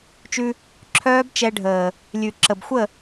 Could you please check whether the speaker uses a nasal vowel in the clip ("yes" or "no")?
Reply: no